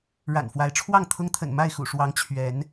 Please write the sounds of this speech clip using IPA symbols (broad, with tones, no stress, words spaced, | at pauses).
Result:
ɻa̰˨˩nfwa˨˦ɪ̯ʈ͡ʂʰwɑ˥˨ŋt̪ʰʊ˦ŋ t̪ʰə̰˨˩nma˥˨ɪ̯xṵ˨˩ʂwɑ˨˦ŋ t͡ɕʰɥɛ˨˦n